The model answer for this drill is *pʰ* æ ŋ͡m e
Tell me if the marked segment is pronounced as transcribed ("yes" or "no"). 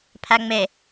yes